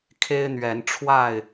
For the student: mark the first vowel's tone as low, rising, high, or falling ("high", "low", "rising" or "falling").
high